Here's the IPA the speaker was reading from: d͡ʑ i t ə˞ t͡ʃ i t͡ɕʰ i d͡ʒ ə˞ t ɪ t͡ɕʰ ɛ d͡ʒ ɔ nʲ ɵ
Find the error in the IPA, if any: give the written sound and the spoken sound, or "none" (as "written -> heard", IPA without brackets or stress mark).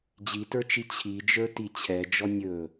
ɪ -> i